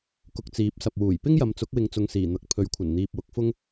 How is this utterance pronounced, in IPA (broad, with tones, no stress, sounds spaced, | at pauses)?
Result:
k ʊ˧ k̚ t͡s iː˨˥ p̚ s ɐ˨ p̚ w uː˨˩ j p ɪ˥ ŋ j ɐ˨˧ m t͡s ʊ˨˥ k̚ w ɪ˧ ŋ t͡s ʊ˧ ŋ s iː˨˩ n̪ ɐ˨˥ k̚ pʰ ɵ˨˥ ɥ kʷʰ ɐ˨˩ n n̪ iː˨ p̚ w ʊ˨˥ k̚ f ʊ˥ ŋ